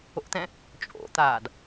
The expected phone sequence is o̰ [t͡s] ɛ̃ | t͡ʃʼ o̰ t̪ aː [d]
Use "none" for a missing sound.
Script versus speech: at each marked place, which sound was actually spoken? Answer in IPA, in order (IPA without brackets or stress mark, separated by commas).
t̪, d